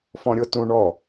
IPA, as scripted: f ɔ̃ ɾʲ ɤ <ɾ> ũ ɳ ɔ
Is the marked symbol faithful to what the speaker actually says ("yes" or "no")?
no